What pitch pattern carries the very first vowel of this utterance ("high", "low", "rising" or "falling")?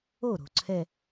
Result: falling